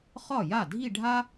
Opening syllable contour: falling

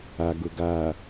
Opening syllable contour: low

